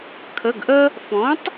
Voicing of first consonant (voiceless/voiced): voiceless